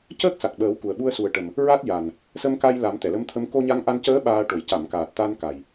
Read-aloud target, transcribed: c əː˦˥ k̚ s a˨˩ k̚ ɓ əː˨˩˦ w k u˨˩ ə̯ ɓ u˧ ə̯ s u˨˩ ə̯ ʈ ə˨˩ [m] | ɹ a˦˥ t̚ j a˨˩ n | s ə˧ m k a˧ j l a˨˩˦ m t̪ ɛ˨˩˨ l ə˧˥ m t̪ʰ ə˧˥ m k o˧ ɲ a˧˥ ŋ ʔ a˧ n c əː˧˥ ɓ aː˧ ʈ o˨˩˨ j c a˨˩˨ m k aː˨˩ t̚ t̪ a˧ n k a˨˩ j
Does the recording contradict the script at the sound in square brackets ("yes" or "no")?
no